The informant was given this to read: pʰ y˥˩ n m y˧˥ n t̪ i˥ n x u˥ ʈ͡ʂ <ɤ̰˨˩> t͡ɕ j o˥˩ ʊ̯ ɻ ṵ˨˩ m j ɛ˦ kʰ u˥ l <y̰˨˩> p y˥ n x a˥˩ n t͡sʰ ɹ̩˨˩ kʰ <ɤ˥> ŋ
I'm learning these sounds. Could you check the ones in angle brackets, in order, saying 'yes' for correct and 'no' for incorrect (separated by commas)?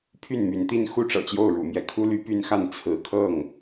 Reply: yes, no, no